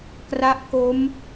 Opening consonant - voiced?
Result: no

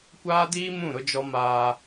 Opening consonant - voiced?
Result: no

